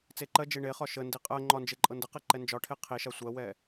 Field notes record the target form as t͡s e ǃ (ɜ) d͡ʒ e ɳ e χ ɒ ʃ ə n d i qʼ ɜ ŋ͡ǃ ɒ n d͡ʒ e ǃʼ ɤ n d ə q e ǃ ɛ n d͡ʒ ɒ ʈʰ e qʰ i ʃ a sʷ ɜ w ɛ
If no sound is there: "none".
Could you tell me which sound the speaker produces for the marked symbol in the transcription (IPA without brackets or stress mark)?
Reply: ɜ